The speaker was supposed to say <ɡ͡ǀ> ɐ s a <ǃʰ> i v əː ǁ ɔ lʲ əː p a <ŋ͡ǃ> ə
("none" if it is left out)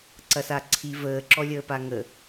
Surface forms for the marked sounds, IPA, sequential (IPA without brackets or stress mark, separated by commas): ǀ, ǀʰ, ŋ